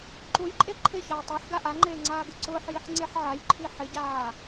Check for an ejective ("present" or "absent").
present